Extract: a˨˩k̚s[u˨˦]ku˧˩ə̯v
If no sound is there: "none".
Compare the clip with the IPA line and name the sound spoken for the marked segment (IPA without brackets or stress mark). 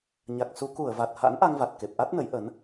u˨˦